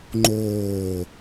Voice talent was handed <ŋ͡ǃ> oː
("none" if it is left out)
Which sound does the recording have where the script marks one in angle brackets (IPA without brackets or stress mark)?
ŋ͡ǃ